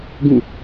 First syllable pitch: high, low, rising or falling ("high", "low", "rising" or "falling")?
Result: falling